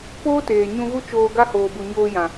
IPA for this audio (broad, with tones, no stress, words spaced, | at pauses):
poː˦teː˨ ɲũ˧ɣu˦t͡ʃoː˧ɡa˦ hoː˧bu˧ ɲoː˧jã˨